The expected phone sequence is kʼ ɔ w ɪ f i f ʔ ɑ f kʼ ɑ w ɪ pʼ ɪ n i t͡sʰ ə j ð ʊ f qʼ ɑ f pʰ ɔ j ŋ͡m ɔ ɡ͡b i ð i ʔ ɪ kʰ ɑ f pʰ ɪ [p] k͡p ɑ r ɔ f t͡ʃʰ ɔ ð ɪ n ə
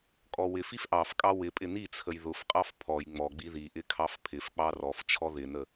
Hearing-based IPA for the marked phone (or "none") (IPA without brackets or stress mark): f